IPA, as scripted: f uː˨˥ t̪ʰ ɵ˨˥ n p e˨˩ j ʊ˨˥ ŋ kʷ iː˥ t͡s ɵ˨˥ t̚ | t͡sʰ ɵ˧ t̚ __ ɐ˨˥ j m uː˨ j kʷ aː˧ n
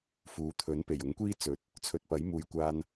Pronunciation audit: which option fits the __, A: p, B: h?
A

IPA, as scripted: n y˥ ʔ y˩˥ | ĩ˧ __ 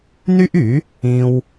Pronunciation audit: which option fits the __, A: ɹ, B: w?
B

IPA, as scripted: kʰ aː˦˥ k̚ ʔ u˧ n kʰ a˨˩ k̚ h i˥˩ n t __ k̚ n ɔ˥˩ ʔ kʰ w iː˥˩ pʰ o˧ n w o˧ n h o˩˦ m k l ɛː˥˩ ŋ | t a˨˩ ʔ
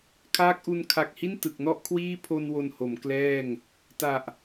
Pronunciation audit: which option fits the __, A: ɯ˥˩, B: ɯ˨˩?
B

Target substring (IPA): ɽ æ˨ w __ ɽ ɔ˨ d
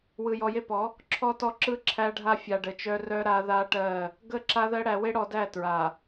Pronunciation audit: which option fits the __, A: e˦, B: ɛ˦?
A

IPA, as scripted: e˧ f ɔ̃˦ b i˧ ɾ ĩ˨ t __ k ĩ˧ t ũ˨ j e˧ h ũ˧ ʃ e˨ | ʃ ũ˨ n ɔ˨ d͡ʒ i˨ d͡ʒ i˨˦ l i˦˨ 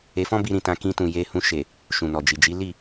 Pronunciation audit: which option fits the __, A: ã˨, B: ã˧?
B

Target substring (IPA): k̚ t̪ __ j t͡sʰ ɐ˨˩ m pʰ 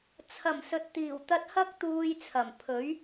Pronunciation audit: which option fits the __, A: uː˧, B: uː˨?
A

